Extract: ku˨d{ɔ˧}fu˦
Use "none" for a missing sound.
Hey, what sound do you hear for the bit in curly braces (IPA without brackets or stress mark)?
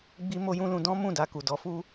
ɔ˨˦